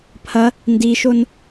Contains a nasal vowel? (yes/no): no